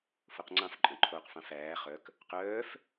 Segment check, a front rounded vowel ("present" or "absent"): present